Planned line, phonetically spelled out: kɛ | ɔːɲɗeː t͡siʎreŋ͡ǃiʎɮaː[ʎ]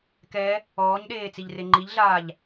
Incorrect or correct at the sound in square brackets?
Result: correct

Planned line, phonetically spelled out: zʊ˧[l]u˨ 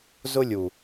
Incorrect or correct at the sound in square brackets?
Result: incorrect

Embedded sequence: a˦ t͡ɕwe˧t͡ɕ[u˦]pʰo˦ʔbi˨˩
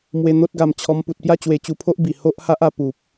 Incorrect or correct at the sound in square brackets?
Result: incorrect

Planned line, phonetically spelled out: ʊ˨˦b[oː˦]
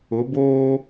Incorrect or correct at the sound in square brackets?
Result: correct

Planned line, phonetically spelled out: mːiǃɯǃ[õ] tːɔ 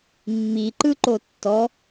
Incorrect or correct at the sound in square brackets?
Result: incorrect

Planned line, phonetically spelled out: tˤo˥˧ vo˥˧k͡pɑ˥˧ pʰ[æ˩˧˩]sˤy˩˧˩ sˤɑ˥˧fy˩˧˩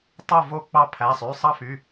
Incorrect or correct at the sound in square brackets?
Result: correct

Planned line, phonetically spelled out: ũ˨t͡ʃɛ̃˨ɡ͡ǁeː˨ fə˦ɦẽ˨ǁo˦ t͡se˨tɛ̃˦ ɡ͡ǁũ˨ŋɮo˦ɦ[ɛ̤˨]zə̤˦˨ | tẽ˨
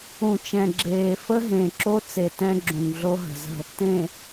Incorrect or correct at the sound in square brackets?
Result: incorrect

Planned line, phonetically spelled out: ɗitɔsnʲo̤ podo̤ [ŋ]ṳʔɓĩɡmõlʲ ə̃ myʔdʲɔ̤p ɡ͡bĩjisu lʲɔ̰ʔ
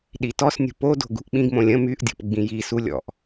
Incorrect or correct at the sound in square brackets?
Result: incorrect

